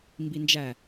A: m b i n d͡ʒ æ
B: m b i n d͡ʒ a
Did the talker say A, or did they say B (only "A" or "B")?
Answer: A